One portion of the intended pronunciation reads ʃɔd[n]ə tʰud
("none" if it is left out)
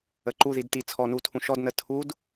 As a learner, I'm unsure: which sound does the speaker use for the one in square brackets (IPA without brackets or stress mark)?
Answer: n